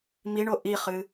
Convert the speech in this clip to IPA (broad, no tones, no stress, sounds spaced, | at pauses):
m i ɳ o ʔ i χ ɨ